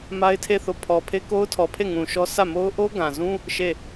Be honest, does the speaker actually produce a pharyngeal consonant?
no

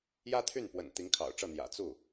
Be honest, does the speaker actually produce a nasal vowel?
no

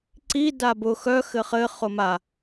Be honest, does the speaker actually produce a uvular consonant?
yes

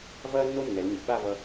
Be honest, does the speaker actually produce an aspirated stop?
no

